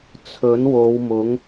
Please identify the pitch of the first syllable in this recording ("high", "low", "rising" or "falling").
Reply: rising